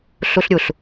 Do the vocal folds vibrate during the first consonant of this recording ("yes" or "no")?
no